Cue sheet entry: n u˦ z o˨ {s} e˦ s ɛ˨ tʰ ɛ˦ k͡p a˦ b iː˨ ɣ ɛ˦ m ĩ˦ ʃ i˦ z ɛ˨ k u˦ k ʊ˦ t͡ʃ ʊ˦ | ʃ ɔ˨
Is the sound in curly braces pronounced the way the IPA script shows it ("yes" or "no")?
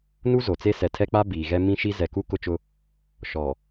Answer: no